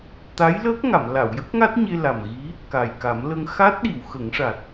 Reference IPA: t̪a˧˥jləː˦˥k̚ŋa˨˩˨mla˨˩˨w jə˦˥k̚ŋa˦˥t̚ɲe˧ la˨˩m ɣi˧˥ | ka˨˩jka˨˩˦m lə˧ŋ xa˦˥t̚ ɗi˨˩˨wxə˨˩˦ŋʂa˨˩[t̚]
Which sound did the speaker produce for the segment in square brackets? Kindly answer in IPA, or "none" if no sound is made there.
t̚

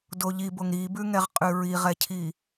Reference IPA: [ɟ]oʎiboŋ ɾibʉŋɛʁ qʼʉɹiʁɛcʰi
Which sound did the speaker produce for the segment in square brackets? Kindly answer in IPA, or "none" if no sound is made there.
d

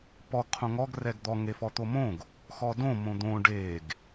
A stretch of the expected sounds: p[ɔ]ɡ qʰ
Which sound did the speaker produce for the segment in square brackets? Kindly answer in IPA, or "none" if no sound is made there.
ɔ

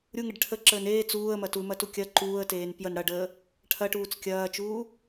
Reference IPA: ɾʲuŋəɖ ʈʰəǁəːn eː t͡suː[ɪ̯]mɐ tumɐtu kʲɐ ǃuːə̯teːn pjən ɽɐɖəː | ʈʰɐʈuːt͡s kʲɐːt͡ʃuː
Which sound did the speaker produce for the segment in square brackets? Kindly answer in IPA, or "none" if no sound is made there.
ə̯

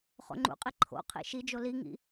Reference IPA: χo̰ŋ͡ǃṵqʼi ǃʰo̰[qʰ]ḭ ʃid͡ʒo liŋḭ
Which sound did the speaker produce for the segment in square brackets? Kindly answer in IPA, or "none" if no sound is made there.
qʰ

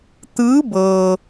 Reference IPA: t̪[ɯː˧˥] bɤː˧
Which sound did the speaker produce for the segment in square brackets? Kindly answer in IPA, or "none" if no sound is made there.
ɯː˧˥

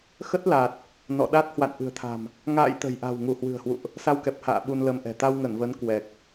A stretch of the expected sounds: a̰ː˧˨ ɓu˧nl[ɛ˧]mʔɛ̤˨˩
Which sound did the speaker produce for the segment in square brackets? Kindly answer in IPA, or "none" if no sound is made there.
ə˧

